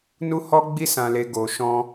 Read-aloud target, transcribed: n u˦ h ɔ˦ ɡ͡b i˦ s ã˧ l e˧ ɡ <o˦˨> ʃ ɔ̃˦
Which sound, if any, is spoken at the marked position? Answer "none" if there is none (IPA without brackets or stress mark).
o˧